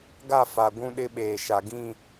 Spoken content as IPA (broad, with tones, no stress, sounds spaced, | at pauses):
ɡ a˦˨ f a˨ ɡʷ ũ˦ ɗ ɪ˦ ɓ eː˨ ʃ a˨ ɡ ĩ˦˨